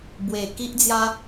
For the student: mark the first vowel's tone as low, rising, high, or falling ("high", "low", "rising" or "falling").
low